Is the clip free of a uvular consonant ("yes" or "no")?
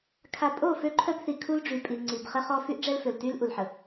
no